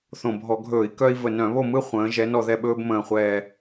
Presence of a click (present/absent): absent